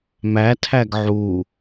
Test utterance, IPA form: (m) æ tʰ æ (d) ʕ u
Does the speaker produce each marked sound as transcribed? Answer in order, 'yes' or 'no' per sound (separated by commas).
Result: yes, no